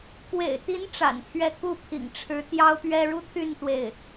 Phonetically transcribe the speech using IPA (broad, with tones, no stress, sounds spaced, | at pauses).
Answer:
k w ḛ˨˩ ɪ̯ t̪ i˧˥ n ʈ͡ʂ a̰˨˩ n pʰ ɥ ɛ˥˧ k u˥˩ pʰ ḭ˨˩ ŋ ʈ͡ʂʰ ɻ̩˧˥ t̪ j ɑ˥ ʊ̯ p ɥ ɛ˥ ɻ u˥ t̪ʰ y˥˧ n t̪ w e˥˩ ɪ̯